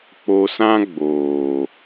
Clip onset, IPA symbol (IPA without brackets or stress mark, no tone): k͡p